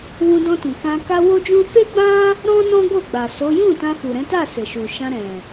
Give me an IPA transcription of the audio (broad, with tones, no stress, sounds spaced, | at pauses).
w ũ˧ d ɔ̃˧ t ũ˨ k ã˧ k a˦ w o˦ d͡ʒ ũ˦ f e˦ ɡ͡b ã˦ | ɾ ɔ̃˦ n ɔ̃˦ ɡ o˦˨ ɡ͡b a˨ s o˨˦ j ũ˦˨ t ã˧ f u˨ ɾ ɛ̃˨˦ t a˦˨ s e˨ ʃ u˨ ʃ ã˧ ɾ ɛ̃˨